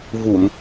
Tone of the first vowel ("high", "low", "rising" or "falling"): low